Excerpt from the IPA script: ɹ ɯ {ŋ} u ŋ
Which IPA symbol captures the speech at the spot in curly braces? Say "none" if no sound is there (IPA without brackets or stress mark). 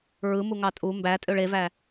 m